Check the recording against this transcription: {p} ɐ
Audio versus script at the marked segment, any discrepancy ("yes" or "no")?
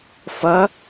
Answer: yes